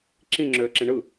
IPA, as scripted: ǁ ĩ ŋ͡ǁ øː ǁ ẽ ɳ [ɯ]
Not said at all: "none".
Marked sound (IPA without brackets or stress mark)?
ɯ